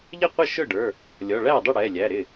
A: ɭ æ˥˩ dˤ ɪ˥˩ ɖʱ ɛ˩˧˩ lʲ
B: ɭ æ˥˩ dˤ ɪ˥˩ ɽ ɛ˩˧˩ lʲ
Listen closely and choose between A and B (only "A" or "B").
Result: B